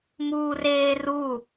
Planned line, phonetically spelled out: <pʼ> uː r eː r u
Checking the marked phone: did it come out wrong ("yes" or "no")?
yes